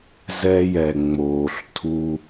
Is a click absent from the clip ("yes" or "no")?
yes